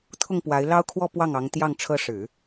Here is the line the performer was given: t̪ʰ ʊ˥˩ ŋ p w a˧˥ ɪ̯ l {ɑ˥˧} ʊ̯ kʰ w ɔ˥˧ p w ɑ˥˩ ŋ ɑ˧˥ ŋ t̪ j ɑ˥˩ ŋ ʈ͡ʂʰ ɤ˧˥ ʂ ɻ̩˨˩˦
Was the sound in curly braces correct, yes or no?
no